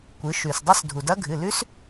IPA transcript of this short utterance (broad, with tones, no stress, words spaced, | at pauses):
kʷɨ˩˧ʃʉ˩sdˤɐ˦˥s dʱu˩dɐ˦˥ɡʱɨ˩˧˩ lʉ˦˥s